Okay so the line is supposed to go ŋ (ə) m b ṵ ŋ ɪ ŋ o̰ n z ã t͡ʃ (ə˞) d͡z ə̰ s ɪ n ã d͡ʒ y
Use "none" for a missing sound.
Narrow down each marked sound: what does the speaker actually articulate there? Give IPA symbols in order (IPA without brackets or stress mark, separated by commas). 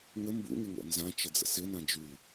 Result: ə, ə